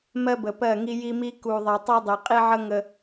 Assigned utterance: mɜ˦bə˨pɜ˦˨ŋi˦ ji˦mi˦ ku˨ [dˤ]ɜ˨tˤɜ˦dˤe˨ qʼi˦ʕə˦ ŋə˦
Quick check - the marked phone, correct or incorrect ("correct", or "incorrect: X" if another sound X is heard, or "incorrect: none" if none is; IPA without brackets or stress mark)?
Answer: incorrect: ðˤ